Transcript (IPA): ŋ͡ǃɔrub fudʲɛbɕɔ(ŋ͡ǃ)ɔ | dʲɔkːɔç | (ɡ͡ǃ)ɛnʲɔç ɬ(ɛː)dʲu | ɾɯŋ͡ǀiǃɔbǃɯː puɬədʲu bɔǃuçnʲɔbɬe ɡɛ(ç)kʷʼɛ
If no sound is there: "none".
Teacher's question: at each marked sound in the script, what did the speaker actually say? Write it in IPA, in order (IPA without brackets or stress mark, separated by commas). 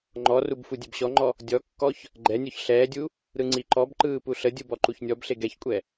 ŋ͡ǃ, ɡ͡ǃ, ɛː, ç